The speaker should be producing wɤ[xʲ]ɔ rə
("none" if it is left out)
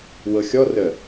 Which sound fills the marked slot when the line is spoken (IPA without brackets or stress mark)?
xʲ